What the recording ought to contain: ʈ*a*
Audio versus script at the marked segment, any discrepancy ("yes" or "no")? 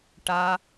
no